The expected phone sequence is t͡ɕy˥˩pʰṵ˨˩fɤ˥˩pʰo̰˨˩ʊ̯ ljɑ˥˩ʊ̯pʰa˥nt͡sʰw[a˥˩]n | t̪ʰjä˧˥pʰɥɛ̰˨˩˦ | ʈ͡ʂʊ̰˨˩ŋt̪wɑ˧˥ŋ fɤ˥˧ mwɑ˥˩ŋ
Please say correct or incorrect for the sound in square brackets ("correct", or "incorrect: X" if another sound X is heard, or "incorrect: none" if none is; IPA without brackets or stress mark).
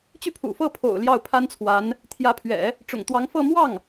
incorrect: a˧˥